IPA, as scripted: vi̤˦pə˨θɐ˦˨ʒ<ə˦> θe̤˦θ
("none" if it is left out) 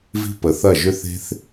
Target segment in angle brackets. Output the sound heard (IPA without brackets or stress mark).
ʏ˦